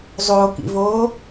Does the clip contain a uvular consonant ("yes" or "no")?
no